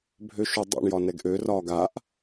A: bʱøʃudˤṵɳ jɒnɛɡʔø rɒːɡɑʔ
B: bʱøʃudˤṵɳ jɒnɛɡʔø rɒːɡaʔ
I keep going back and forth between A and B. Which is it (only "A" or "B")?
B